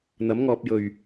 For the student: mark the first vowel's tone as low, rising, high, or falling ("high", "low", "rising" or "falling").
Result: rising